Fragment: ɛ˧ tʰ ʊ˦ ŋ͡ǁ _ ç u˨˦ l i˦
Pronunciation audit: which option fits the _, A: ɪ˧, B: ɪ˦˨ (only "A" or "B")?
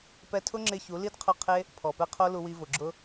A